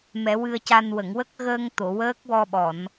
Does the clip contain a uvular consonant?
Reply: no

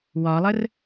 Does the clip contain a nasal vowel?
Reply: no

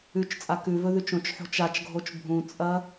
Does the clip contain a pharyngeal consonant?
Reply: yes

